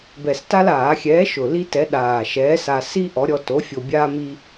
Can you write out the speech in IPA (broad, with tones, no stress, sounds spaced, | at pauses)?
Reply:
b ɛ˨˩ s t a˥ l aː˧˩˧ xʲ ɛː˨˥ ʃ ʊ˨˩ l i˥ t ɛ˨˥ ɗ aː˨˩ ʃ ɛː˨˥ s a˧ s i˥ ʔ ɔ˨˥ ɾʲ ɔ˧ t o˨˥ fʲ o˧ bʲ aː˥ m i˥